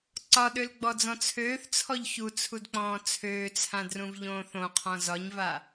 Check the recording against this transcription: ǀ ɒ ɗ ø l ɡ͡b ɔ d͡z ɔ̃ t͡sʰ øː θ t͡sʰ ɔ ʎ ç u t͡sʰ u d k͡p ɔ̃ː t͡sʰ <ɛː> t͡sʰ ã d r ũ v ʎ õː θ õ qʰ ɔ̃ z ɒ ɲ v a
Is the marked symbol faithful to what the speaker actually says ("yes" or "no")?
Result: no